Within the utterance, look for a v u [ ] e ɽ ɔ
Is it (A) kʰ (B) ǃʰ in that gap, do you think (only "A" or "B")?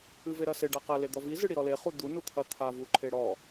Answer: B